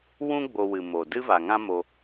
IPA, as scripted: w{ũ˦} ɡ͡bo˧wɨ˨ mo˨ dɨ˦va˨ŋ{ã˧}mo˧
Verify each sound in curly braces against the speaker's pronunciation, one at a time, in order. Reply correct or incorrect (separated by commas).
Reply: correct, incorrect